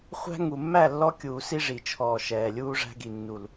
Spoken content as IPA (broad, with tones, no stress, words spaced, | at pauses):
χʷæ̤˦ ŋu˨mːæ˦˨lːɔ˦kʲuː˨ si˦ʐi˨t͡ʃʰɔː˨ ʃɛː˨lʲuː˦ʐæ̤˦ɡi˨ nːu˨l